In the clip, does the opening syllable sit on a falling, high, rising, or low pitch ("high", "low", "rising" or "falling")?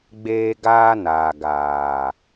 high